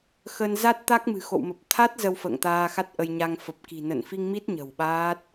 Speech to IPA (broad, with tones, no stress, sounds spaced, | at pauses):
x ə˧ n z a˦˥ t̚ t̪ a˦˥ k̚ m ɨ̤˨˩ x o̰˧˨ w m ə˨˩ p̚ t̪ʰ a˦˥ t̚ z ə˧ w f ə̰ː˧˨ ŋ t̪ aː˧ x a˦˥ t̚ ʔ ə˧ j ɲ a˧ ŋ f ə˨˩ p̚ k i̤˨˩ n ə̰˧˨ n f i˧ ŋ m i˦˥ t̚ ɲ ə̤˨˩ w ɓ aː˦˥ t̚